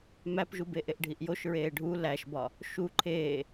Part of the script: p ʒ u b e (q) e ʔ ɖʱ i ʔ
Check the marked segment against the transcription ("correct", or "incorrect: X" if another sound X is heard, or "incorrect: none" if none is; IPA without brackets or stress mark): incorrect: ʔ